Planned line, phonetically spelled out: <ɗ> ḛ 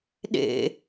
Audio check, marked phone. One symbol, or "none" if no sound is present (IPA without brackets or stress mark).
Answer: ɗ